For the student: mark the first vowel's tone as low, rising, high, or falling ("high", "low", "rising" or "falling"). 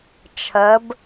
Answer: rising